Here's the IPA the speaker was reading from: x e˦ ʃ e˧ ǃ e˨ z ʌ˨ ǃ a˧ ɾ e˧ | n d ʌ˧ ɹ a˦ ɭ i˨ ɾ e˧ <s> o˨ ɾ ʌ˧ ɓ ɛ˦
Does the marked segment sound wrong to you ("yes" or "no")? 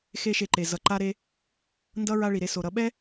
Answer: no